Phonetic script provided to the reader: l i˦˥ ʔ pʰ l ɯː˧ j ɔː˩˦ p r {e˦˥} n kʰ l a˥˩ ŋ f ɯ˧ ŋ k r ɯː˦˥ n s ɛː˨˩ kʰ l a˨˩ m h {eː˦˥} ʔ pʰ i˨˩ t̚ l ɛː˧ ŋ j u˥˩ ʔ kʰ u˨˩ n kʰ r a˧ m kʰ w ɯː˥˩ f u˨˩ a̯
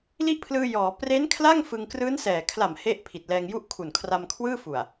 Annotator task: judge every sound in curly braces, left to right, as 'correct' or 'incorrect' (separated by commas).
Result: correct, incorrect